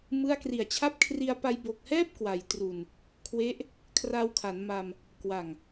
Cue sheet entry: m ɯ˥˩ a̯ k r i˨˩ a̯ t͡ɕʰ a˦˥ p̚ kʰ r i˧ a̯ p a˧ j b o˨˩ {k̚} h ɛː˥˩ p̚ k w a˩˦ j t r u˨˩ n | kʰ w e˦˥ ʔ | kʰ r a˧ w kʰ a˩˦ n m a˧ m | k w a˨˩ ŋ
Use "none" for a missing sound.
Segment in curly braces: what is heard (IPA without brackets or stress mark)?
k̚